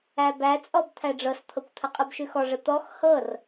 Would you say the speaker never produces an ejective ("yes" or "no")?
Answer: no